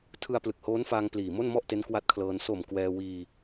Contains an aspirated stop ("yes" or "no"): yes